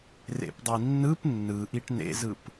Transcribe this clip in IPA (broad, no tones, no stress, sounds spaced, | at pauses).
r ḛ p dˤ i nː ɯ p nː ɯ ʔ i ʈ n ḛ z ɯ p